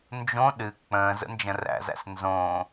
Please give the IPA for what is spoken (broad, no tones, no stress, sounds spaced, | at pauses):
n d͡ʒ õ ɗ ɨ k͡p ə̃ː z ə̰ n d͡ʒ ə̃ r æ̰ z æ̰ s n z õː